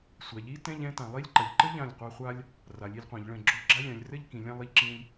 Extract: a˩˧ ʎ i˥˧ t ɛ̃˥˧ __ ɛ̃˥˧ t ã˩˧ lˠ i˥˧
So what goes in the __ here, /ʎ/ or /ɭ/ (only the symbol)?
ʎ